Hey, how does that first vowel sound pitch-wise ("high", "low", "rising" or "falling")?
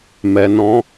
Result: low